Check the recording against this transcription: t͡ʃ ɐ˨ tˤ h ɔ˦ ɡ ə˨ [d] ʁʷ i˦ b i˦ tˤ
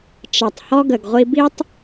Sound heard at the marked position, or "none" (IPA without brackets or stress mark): ɡ